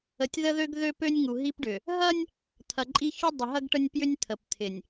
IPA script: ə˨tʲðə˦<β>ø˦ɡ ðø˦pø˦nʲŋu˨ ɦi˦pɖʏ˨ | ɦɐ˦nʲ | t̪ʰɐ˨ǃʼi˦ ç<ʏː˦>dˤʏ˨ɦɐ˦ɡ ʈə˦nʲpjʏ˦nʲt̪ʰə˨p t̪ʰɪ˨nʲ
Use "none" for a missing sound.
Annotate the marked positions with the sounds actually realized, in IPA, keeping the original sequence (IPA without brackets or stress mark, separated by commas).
ð, ʏ˦